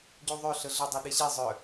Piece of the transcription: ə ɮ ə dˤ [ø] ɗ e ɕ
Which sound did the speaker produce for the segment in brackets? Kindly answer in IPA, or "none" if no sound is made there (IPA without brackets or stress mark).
u